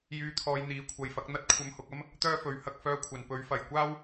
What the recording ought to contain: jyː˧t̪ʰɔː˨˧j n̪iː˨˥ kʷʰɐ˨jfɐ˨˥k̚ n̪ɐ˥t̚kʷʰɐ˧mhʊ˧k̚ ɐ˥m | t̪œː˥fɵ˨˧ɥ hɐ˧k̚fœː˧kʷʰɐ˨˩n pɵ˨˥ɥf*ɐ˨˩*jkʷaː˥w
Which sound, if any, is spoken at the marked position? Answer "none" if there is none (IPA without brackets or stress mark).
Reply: ɐ˨˩